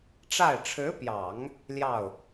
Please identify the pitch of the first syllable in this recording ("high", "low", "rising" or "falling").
falling